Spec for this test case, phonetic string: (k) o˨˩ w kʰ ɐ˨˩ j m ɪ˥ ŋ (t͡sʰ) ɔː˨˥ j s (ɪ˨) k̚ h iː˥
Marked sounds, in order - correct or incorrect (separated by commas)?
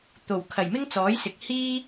incorrect, incorrect, correct